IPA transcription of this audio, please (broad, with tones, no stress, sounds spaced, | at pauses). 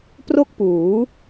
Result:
p r o˥˩ k̚ p uː˩˦